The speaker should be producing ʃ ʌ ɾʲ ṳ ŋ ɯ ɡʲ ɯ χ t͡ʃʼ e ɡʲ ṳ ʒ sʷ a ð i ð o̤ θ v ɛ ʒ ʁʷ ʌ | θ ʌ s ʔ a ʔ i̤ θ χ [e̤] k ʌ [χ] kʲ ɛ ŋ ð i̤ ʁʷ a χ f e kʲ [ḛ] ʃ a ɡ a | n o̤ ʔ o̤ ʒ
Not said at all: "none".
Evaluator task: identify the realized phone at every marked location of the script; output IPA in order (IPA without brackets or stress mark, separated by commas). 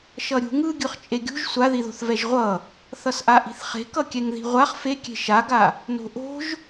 e̤, none, e̤